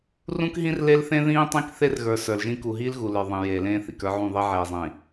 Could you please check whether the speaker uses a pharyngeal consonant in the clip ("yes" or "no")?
yes